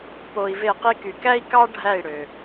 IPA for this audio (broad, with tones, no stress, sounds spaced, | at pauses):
p o˧ i̯ v e˦˨ q i˦ k y˨ k æ˦ i̯ k ɑ˦ ɖʱ æ˦˨ i̯ ɽ ø˨